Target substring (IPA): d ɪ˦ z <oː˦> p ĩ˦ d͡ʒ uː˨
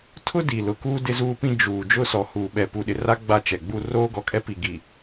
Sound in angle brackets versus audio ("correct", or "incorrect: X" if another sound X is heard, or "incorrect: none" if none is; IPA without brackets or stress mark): incorrect: uː˦